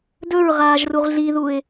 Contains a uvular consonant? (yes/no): yes